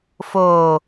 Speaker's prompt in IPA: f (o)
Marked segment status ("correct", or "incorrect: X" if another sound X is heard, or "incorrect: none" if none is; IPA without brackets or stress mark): incorrect: oː